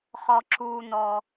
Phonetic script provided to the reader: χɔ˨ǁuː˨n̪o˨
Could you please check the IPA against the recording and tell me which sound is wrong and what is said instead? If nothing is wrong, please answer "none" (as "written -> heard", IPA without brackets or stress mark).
o˨ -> ɔ˨